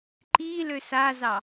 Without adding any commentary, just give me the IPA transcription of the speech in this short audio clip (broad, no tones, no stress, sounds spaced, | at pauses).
ǃ i l ø s a z ɑ